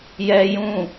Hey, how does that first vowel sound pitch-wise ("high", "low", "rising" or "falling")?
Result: high